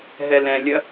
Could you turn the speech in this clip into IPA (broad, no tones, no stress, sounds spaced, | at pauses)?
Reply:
ɦ ɛ l ɛ̃ lʲ ɐ